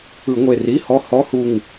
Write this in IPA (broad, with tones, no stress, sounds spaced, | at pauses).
ɯ˧˩˧ ŋʷ e˧˩ r i˧˥˧ h ɔ˦˥ h ɔ˧˥˧ h u˧˩ ŋ